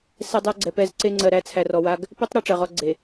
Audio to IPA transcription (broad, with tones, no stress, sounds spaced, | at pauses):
s ɛ˦ dˤ æ˦ ɡ͡ǀ ɛ˨ p ɛ˦ z ǀ e˦ ŋ͡ǀ ɜ˨ ɾ æ˨˦ t͡sʰ æ˨ r ɔ˨ w a˦ ɡ | p e˦ tˤ ɾ a˦ ʈ͡ʂ ɜ˨ ʁ ɔ˦ ɡ͡ǀ e˨